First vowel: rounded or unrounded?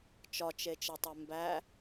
rounded